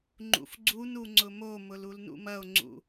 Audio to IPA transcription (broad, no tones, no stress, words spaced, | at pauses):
ŋ͡ǃṵfɡ͡ǀunu ŋ͡ǀʊmomʊl ulnṵmɐo̯ŋ͡ǀṵ